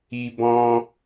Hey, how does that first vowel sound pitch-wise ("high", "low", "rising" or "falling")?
high